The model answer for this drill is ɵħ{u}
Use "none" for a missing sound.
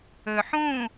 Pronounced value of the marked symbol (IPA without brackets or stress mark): ũ